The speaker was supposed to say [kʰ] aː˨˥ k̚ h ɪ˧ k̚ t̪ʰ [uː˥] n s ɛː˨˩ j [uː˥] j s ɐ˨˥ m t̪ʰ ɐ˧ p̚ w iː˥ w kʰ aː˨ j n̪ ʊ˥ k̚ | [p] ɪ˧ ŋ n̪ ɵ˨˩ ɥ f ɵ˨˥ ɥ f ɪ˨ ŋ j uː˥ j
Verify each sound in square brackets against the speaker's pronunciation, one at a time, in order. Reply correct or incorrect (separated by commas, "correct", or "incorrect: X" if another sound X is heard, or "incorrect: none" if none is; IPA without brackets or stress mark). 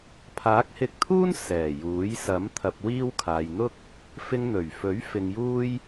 incorrect: pʰ, correct, incorrect: uː˨˥, incorrect: f